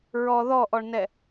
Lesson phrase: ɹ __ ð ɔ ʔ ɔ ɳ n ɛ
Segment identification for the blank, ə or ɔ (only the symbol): ɔ